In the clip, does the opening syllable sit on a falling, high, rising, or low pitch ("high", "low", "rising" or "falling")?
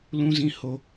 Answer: low